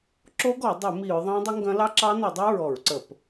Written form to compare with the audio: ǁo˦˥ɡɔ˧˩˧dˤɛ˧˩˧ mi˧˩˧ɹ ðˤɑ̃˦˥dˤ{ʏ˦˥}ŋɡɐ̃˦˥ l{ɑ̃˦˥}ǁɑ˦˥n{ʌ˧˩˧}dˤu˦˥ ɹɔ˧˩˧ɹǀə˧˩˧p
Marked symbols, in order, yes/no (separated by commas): yes, no, yes